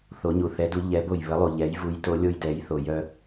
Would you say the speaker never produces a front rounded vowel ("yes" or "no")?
no